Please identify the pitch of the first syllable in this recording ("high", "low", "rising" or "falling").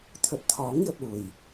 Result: low